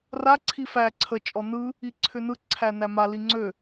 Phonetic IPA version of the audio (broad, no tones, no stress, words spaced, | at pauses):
ra ǀʰifæ ǀʰə t͡ʃʼɔnɯ | iǀʰʏnɯ ǀʰænæma liŋ͡ǀø